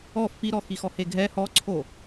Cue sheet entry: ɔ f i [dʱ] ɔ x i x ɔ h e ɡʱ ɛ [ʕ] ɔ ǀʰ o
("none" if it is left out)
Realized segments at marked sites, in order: ɾ, h

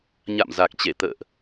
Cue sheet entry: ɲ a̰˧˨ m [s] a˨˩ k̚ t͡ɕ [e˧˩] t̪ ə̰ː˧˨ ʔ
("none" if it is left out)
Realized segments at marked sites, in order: z, e˧˩

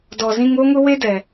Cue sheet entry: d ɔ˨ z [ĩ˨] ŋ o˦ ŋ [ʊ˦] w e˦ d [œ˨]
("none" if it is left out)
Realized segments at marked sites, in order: ĩ˦, ʊ˦, ɛ˨

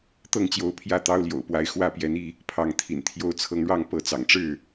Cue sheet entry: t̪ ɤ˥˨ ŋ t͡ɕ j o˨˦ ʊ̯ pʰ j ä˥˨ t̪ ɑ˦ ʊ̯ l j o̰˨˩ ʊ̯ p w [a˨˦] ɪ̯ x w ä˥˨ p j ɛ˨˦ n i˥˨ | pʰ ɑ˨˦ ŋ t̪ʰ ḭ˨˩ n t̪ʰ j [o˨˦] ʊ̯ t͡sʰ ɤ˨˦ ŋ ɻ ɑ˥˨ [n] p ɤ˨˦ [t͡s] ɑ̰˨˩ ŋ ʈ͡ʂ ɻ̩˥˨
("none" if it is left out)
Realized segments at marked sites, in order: a˨˦, o˨˦, ŋ, t͡s

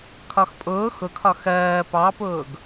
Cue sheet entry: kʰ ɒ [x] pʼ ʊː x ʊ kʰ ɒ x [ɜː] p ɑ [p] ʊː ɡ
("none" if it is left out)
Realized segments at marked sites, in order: x, ɜː, p

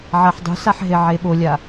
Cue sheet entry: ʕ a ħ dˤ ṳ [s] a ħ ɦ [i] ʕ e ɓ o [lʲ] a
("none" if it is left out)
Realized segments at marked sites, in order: s, e, lʲ

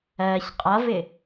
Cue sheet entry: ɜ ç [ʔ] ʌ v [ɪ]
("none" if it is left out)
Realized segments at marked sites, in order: qʼ, ɪ

